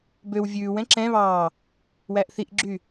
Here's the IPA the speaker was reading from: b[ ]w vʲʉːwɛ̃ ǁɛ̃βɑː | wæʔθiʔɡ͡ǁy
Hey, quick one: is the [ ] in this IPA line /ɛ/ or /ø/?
ø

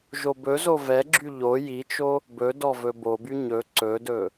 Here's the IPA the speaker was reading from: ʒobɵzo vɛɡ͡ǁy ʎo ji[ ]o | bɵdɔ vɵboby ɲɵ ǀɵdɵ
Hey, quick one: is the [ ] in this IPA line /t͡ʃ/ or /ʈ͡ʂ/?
t͡ʃ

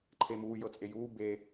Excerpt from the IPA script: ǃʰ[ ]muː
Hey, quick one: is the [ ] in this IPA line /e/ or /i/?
e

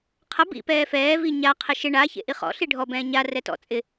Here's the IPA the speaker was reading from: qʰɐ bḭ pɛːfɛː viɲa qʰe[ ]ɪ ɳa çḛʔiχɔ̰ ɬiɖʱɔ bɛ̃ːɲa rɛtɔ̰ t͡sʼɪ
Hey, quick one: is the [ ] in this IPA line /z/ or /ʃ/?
ʃ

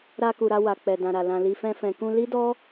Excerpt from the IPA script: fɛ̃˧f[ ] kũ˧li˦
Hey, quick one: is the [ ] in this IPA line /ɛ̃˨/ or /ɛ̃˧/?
ɛ̃˨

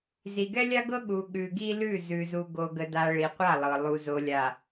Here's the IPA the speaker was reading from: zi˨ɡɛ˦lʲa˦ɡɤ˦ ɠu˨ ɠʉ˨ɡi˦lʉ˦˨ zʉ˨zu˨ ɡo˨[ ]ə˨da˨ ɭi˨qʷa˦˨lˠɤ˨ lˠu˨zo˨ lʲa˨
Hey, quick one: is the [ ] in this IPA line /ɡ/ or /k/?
ɡ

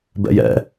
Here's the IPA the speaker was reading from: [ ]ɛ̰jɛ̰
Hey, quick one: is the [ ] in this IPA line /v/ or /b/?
b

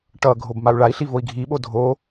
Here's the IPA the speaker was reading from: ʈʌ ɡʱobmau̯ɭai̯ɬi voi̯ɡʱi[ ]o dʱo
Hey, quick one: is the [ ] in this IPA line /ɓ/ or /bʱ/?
ɓ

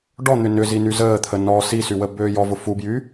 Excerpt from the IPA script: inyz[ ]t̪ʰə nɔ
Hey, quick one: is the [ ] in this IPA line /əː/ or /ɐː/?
əː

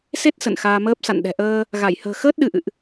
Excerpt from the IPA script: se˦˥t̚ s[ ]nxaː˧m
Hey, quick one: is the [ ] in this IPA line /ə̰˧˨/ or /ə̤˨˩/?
ə̰˧˨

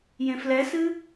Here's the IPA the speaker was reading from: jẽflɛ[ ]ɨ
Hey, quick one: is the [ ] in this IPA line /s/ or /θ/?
s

